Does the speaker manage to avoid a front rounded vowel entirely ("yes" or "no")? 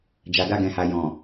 yes